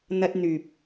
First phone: n̪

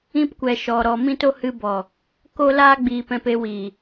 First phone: ĩ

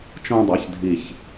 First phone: t͡ʃ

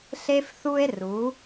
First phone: ɬ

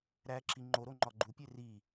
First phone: ɾ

